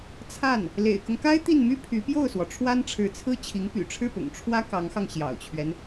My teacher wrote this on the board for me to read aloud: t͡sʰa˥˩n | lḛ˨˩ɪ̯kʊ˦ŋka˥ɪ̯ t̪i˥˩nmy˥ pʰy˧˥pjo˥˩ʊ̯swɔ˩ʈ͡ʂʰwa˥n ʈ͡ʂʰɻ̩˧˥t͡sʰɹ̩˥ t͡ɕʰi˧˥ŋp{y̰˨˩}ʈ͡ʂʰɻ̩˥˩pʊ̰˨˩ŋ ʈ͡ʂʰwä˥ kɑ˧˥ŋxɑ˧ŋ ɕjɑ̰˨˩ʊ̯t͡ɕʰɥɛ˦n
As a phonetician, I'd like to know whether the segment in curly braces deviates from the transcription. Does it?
no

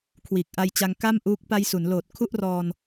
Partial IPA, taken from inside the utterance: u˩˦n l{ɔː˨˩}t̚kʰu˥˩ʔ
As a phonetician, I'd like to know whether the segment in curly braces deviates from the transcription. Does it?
yes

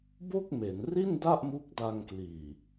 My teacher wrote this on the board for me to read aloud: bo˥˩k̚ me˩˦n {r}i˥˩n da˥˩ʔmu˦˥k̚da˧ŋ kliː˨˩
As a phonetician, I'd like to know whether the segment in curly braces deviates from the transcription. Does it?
no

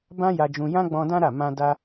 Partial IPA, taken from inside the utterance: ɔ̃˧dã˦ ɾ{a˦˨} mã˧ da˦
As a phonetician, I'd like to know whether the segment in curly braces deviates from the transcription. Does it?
no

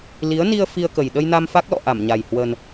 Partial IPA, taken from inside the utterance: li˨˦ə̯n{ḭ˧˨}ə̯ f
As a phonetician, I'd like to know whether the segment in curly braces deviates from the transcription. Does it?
yes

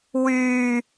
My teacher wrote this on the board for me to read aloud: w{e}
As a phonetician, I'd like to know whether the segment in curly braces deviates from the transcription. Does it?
yes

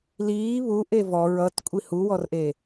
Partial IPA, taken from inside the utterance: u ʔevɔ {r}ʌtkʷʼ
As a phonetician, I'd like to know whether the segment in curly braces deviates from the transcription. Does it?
yes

